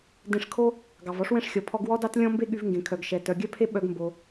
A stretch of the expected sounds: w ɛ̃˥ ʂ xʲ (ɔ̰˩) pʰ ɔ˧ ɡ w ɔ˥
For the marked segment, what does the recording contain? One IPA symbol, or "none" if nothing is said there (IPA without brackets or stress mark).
ɔ˩